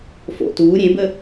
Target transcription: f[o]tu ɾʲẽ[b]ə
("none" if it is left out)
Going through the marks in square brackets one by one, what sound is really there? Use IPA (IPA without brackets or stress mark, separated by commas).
o̰, b